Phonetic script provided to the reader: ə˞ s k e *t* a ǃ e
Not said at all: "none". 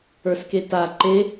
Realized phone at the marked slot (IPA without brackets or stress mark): t